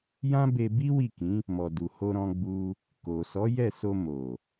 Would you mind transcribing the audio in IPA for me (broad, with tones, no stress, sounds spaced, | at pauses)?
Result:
j ã˦ b e˧ b i˦ w i˦˨ k ĩ˨˦ | m ɔ˨ d u˨ h o˧ ɾ ɔ̃˧ ɡ͡b u˧ | k o˨ s ɔ˨˦ j ɛ˦˨ s o˧ m o˨